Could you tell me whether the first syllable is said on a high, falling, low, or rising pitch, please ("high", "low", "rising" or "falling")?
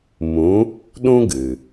rising